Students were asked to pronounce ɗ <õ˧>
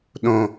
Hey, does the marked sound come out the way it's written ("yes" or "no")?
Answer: yes